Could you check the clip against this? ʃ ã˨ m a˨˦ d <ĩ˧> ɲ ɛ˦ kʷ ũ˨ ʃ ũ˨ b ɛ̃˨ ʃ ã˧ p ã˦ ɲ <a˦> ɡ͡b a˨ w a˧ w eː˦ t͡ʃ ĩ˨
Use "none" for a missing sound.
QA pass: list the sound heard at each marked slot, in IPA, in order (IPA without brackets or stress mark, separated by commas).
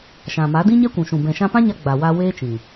ĩ˦, a˧